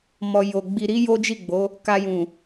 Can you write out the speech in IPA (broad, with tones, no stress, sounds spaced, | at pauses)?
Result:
m ɔ˨ j o˨ ɡ͡b i˨ ɾ i˨˦ j o˦ d͡ʒ i˦˨ ɡ͡b o˨˦ | k a˧ j ũ˨